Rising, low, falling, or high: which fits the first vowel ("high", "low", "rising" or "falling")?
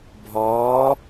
rising